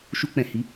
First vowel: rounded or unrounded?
rounded